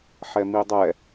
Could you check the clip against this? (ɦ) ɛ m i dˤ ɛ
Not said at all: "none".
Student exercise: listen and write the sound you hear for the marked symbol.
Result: ħ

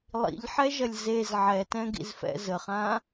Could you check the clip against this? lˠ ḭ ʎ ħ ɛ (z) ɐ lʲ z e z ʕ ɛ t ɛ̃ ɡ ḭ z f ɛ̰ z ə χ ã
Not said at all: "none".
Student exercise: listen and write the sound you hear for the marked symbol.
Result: ʒ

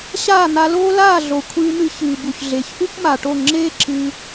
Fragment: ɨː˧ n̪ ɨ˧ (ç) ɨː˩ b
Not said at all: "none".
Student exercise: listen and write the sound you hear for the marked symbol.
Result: ç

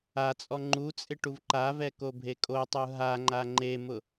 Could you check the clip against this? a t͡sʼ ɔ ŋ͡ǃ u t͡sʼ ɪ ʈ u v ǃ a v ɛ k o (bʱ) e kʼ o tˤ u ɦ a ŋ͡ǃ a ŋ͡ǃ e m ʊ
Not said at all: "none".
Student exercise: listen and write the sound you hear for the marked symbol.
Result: bʱ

